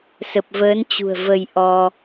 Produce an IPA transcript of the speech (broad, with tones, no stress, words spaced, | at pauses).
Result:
sə˨˩p̚vəː˨˦nt͡ɕṳ˨˩ə̯ və˧jʔɔ˧